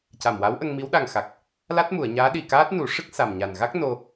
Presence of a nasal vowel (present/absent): absent